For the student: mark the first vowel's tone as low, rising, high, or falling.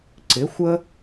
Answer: rising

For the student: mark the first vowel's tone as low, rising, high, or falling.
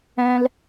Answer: high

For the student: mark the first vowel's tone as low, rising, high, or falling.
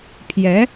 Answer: rising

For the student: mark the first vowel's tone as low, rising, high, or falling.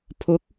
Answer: rising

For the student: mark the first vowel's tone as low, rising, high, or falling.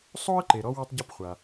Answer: high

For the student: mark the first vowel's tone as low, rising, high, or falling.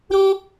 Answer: high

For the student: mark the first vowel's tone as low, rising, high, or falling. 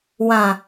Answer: low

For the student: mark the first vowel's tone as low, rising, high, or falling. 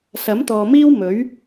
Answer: rising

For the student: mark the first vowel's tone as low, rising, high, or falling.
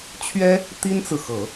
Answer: high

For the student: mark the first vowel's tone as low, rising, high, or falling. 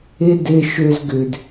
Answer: high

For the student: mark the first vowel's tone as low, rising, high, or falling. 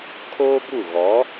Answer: high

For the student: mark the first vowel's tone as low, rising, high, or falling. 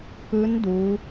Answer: rising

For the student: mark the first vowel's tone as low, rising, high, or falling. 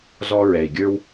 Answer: high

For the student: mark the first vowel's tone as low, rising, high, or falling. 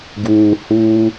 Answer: low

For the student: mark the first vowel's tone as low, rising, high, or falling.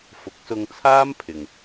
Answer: rising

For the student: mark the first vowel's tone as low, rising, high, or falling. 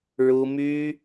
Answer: high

